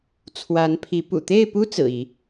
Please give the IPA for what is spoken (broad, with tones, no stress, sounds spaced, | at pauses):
t͡sʰ w a˨˦ n pʰ i˨˦ p ṵ˨˩ t̪ e˥˨ ɪ̯ p u˦ t͡s ɹ̩˨˩ i˨˦